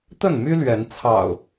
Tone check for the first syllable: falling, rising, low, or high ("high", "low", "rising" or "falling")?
falling